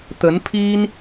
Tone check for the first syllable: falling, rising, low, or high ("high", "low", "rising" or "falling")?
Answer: rising